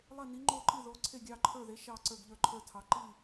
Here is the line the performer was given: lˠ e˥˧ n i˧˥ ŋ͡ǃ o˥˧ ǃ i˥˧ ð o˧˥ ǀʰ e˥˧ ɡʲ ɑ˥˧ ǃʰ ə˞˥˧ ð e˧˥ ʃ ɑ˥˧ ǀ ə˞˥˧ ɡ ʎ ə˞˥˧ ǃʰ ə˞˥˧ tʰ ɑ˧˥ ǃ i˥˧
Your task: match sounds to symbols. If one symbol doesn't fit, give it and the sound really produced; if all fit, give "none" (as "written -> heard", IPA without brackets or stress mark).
none